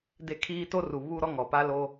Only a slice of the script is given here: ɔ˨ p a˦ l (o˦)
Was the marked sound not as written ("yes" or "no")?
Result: no